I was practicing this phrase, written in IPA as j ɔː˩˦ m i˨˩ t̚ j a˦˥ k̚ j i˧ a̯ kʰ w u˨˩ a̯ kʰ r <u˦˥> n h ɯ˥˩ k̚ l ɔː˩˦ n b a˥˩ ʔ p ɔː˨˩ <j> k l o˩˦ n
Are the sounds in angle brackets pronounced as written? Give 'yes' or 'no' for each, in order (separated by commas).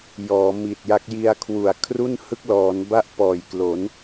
no, yes